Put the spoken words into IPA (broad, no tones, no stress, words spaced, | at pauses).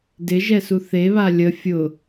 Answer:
dɪʒɛsu θeβa lʲə fʲʊ